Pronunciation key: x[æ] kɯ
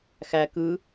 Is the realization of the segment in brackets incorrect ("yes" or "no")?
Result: no